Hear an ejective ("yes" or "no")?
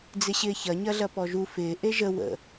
no